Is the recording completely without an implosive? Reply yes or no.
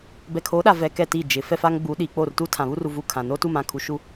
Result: no